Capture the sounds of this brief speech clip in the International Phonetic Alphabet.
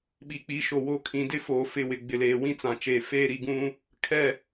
ɓ i˨ k͡p i˨˦ ʃ o˨ w o˦ kʰ ĩ˨˦ d ɪ˦ f oː˨ f ɪ˦˨ w ɪ˨ ɡ͡b ɪ˨ l eː˨ w ĩ˦ t͡s ã˨ t͡ʃ eː˨ f eː˦ ɾ i˨ ɡ ũ˦ | kʰ ɛ˦˨

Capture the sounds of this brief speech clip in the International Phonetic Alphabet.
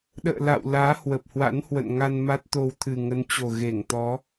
ɗ ə̰ː˧˨ l a̰˧˨ w l aː˨˦ h w ə˨˩ p̚ h w a̰˧˥ n h w ə̰˧˨ n ŋ a˧ n m a˦˥ t̚ t̪ o˧ w t̪ʰ ɨ˨˩ ŋ ə˨˦ n t͡ɕ o˨˩ ɣ e˧˩ ŋ t̪ ɔ˨˦

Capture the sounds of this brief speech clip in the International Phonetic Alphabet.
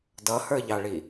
d ʌ h ə˞ ʎ ɑ ɭ i

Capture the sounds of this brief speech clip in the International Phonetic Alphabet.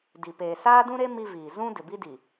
d i˨ p eː˨ s aː˦ d ũ˦ ɾ e˦ m i˦ v iː˨ z ũ˦ d ɪ˨ b i˦ d i˨

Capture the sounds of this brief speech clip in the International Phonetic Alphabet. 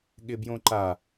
ɠ ɪ b j õ ǃ a

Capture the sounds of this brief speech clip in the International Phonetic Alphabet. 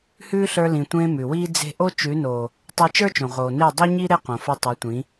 h ʉː˦ ɬ ə˞˧ l ĩ˨ tʷ ẽː˧ m ʉ˨ w iː˦ d͡z e̤˦ ʔ o˦ t͡ʃ ʉ˨˦ n oː˨ | tˤ e˧ t͡ʃ ə˞˦ t͡ʃ õ˨ ʁ oː˨ n e˦˨ dˤ ʉ˦ ɲ i˦ ɾ e˦ q õ˨ f o˧ tˤ ə˞˨˦ tʷ ĩ˨˦

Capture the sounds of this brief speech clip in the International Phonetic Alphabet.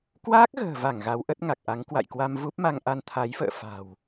k w aː˦˥ k̚ ɣ ə̤ː˨˩ v a˧˩ ŋ ɣ a˨˦ w ʔ ə˦˥ t̚ ŋ a˨˩ k̚ ʔ a˨˦ ŋ k w a̰˧˨ j k w a˧ m v u˦˥ p̚ m a˧ ŋ ʔ a˧ n t̪ʰ a˨˦ j f ə̰ː˧˨ f a̤˨˩ w

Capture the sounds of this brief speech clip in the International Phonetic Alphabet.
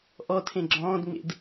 ʔ ɔ tʰ ẽ ɡ͡ǁ ɔ̃ː d ŋ͡m ḛ d

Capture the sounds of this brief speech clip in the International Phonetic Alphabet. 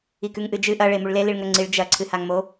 i k ʉ ŋ ʔ ɨ d͡ʒ ɨ ʔ ɐ ɭ e m u ɭ l e l i ɭ ŋ ɵ ŋ͡ǀ i ɭ d͡ʒ ɐ ǀʰ ɨ h a ŋ m o

